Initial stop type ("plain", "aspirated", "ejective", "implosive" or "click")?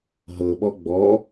implosive